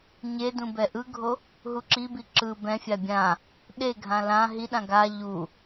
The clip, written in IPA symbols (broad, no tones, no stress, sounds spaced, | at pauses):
ɲ e d ũ b ɛ ʔ ɯ ɡʱ o | ɦ u ǁ i b i ǁ ɯ b ɛ̃ fʲ a bʲ ã | ɗ e ɡʱ ã l ã ɦ i ɗ ã ɡ a ʎ u